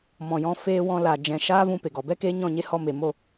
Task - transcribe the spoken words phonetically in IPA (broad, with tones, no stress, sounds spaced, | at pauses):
m ɔ̃˨ j ɔ̃˧ f eː˧ w ɔ̃˧ l aː˨ d͡ʒ ɛ̃˨ ʃ aː˦ v ũ˧ p e˨ ɡ ɔ˨ b ɛ˦ k eː˦ ɲ ɔ̃˦˨ ɲ e˦ h ɔ˧ m e˨ m o˦˨